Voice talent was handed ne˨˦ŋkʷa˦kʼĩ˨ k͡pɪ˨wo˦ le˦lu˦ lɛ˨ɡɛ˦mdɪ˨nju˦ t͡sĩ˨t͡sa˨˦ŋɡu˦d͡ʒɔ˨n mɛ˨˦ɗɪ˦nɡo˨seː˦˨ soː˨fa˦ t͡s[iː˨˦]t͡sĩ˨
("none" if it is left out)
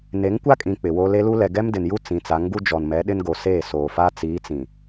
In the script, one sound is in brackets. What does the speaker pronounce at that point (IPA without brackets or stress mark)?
iː˨˦